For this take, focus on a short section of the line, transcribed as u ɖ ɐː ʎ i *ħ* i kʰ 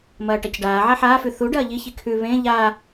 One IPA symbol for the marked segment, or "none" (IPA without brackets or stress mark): ç